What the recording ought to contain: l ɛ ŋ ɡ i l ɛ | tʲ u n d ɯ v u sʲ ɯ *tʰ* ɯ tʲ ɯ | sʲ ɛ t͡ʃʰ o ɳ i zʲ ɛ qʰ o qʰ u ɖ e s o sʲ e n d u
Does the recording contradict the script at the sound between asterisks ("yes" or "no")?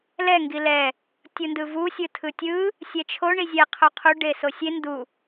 no